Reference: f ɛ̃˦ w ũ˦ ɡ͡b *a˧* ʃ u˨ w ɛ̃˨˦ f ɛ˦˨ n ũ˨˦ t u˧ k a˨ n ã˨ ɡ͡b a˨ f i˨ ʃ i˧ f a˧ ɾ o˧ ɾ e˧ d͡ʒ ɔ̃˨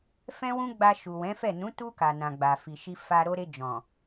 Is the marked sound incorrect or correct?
correct